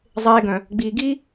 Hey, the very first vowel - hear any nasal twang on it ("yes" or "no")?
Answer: no